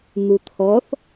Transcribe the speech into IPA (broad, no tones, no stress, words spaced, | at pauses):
n̪ut̪ʰɔθ